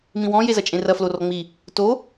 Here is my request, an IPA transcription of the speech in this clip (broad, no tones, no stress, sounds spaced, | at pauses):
m ĩ w ɔ̃ j e z ɐ t͡ʃʼ ẽ r ɐ f l o r ɔ ŋ͡m i | t o